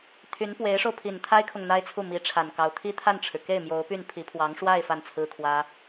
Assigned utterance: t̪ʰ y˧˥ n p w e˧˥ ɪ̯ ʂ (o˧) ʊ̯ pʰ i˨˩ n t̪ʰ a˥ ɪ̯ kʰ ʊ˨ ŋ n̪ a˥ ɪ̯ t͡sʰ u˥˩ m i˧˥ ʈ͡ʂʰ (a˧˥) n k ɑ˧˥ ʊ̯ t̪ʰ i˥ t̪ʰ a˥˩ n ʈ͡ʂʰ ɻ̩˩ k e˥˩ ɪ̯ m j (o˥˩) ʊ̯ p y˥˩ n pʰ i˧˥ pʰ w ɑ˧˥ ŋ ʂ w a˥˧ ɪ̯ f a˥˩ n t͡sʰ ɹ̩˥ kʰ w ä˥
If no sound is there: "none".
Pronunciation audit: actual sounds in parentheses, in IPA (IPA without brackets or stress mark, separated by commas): o˧, a˨˩, o˧˥